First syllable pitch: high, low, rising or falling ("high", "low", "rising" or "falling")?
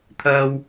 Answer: high